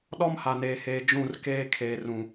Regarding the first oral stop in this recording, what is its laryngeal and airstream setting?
implosive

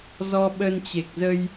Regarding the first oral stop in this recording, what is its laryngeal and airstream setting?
implosive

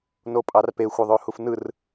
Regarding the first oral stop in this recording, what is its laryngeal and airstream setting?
ejective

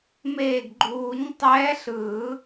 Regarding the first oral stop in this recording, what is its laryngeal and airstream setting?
plain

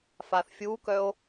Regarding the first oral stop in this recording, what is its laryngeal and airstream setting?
plain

